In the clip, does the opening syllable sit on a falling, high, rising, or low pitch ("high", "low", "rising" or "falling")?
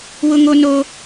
high